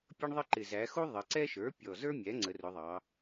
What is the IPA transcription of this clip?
pʲ ʌ˦ ɳ ðˤ ə˦ ǃ ɪ˨˩ z æ˩˧ x u˦ ðˤ ə˩˧ ǀ ɛ˦ ʃ ə˞˩˥ pʲ ɔ˨˩ z ə˞˦ mʲ æ˩˥ ŋ͡ǀ ə˩˧ r ʊ˩˧ ðˤ ɑ˩˧

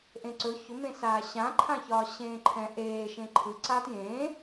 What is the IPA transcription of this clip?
ʔ ẽ ǀ ɵ ç ɵ m ẽ s aː ɕ ã ǃʰ ã ç ɒː ɕ ẽː ǃʰ ɛ̃ ʔ eː ʃ ẽ ǃʰ ɯ ǀ aː t j ẽː

